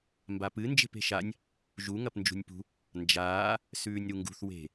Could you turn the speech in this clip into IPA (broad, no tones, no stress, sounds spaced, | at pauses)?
m b a p ɨ n d͡ʒ e̤ p e̤ ʃ a nʲ | ʒ u ŋ ɐ p n d͡ʒ ṳ nʲ p ṳ | n d͡ʒ aː | s ʉː nʲ ɾ u ŋ ɡ ṳ θ w e̤